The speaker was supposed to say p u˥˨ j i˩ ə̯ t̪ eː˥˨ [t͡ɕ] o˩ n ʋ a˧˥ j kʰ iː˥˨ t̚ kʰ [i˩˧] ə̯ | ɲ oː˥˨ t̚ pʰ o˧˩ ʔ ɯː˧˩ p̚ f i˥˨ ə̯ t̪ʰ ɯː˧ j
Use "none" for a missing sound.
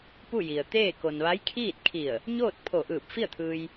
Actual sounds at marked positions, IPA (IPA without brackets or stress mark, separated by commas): k, i˧˩